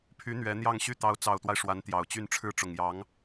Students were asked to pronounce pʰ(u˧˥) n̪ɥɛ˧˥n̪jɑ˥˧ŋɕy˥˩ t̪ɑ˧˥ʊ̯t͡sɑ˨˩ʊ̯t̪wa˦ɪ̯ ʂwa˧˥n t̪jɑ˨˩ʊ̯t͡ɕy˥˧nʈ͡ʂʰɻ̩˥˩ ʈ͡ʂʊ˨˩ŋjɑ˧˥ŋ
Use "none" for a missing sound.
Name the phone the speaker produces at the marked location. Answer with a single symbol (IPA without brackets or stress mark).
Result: y˧˥